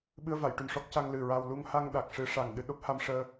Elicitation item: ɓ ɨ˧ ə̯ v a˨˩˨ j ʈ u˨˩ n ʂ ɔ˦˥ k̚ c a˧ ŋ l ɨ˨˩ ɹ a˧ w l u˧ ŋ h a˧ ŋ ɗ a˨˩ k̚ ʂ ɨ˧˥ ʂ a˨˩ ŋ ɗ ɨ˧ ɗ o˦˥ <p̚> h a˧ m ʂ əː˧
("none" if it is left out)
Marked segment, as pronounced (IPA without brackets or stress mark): p̚